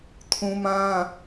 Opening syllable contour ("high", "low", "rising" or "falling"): high